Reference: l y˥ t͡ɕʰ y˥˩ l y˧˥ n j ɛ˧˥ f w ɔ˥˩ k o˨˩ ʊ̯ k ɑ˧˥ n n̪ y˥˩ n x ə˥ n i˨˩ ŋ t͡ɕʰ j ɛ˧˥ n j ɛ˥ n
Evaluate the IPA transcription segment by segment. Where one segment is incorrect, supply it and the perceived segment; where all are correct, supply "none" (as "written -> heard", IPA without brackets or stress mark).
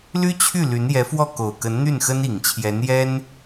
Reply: ɑ˧˥ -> ə˧˥